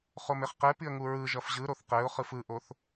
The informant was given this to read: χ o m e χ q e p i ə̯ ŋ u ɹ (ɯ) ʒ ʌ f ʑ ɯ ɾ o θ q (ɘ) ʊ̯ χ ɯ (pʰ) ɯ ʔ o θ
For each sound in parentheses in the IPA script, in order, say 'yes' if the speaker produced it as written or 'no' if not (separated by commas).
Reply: yes, no, no